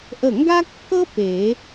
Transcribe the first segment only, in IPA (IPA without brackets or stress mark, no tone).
ʔ